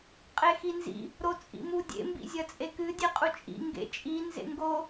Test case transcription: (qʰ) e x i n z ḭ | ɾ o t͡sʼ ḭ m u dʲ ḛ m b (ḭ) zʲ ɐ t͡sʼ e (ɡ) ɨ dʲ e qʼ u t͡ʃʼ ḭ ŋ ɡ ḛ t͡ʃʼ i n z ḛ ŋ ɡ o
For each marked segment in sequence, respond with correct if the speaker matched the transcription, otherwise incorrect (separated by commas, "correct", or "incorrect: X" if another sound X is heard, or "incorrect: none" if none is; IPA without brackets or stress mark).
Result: incorrect: qʼ, correct, incorrect: k